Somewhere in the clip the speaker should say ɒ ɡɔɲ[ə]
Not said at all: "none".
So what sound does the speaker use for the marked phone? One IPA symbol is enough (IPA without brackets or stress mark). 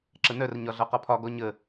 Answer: ə